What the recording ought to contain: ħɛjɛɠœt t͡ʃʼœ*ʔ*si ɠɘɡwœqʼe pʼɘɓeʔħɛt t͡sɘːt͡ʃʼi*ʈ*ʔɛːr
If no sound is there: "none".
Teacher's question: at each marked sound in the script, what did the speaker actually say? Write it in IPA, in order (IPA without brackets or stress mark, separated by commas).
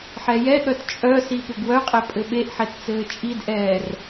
none, d